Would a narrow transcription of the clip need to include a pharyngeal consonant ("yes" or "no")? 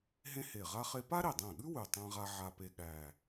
yes